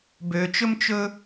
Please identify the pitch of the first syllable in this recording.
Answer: low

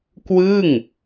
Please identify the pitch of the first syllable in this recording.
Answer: falling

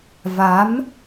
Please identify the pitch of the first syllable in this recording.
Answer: rising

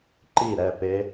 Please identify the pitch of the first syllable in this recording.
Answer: falling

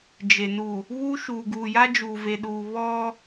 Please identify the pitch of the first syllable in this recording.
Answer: low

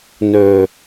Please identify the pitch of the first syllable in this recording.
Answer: low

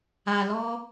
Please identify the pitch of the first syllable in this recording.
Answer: low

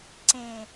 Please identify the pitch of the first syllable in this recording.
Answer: low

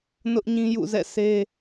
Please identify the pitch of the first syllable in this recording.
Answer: high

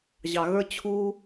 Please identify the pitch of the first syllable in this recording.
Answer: low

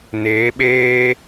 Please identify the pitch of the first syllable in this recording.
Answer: rising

